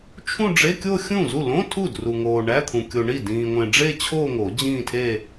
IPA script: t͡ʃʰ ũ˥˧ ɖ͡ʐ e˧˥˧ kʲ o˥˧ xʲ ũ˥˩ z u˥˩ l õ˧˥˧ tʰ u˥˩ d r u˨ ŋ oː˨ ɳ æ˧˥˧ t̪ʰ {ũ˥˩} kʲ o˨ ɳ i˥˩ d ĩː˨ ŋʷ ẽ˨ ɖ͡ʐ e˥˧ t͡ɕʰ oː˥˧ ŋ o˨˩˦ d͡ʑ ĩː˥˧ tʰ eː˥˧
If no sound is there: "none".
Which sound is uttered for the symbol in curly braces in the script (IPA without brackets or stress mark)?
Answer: ũ˨